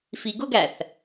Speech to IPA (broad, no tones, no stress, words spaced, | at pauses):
fiɡʊɡæθ